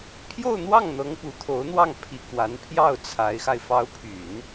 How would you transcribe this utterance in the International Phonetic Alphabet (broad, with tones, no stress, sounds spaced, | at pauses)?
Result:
pʰ j o˥˧ ʊ̯ n̪ w ɑ˥˩ ŋ n̪ ɤ˧˥ ŋ p u˨˩ t̪ʰ o˧˥ ʊ̯ n̪ w ɑ˥˩ ŋ pʰ i˨˩ k w a˧˥ n pʰ j ɑ˥˩ ʊ̯ t͡sʰ a˧˥ ɪ̯ x a˧ ɪ̯ f ɑ˧˥ ʊ̯ pʰ y˨˩˦ n